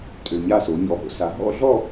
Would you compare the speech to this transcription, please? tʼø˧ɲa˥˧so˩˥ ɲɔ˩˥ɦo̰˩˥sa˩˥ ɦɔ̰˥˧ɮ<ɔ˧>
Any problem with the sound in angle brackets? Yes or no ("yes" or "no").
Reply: yes